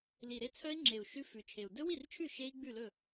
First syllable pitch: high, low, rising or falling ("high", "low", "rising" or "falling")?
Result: low